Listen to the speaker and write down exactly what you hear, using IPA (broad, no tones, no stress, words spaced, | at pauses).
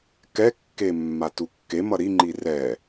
kɛkːe mːatukːemʌ ɾiŋ͡ǃi rɛ